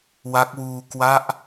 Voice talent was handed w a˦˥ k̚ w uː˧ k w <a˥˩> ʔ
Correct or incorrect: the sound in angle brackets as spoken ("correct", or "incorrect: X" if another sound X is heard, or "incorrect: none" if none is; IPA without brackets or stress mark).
incorrect: a˦˥